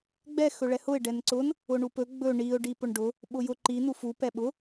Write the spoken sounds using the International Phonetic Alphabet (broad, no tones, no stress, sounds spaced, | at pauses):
ɡ͡b ɛ x ɵ ɭ ɛ h ʊ ɪ̯ ɖ ɛ n ǀ ʊ n | ʊ ɳ u p ɵ ɡ͡b ɵ ɳ i ʊ̯ ɖ i p ʊ ɳ ɖ ʊ | ɓ ʊ j ʊ ǃ i n u f u p ɛ ɓ ʊ